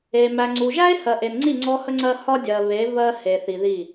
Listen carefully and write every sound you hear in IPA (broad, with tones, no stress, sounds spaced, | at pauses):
e˨ m æ˨ ŋ͡ǀ u˨ ʒ æ˦ e̯ h ɜ˨ ʔ e˨ n ŋ͡ǀ i˦˨ ŋ͡ǀ ɔ˦ h ə˦ ŋ͡ǀ ɜ˦ h ɒ˦ dʲ ɜ˨ β e˨˦ v ɜ˦ h e˨ θ i˨ ð i˦˨